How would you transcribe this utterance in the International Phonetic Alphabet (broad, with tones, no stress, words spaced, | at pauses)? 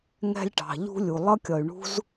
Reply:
ŋɛ̤˥lʲʈɑ̤˩ʎṳ˥ lʲu˩lˠʌ˥kʲʌ˩y̯ ɳṳ˥z